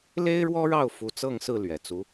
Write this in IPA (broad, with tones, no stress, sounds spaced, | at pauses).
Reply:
l e˥ ɪ̯ ɻ w ɔ˥ ɻ ɑ˥˩ ʊ̯ f u˧˥ t͡s ɤ˥˧ ŋ s ɹ̩˥˩ l ɥ ɛ˨˩ t͡s u˧˥